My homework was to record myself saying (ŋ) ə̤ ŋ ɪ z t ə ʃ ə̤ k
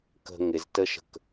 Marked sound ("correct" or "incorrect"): incorrect